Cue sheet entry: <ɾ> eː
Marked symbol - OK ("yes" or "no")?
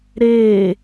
yes